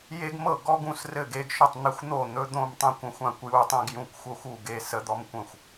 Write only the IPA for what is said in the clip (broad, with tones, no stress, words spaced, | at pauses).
je˦ɡmɤ˥˩ ɡɔ˦ ɡũ˥˩srɘ˥˩ɡe˦ɡʃo˥˩tˤ n̪ɘ˦xʷn̪o˥˩ n̪ɵ˦d̪õ˥˩mtˤẽ˦kʷ ə̃˦xʷã˥˩kʷju˦tˤẽ˦ɡ jũ˥˩kʷxʷɤ˦xʷu˥˩ ɡe˥˩sə˦d̪ɔ˦m kʷə̃˥˩xʷ